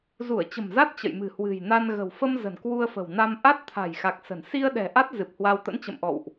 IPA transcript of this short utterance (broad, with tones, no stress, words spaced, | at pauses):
zu˧˩ə̯t͡ɕə̤˨˩mza˦˥t̚ t͡ɕə̰˧˨jmɨ̤˨˩hwɨ̤˨˩j na˧nɣə̤˨˩w fə˧m zə̤˨˩nkwu˧ə̯fə̤˨˩wna˧m ʔa˦˥t̚t̪ʰa̤˨˩jxa˨˩k̚ sə̤˨˩n si˧ə̯ɗɛ̤˨˩ ʔa˦˥t̚ zɨ˨˩p̚ hwa˧w t̪ə̰˧˥nt͡ɕə̰˧˨mʔɔ̰˧˨wʔ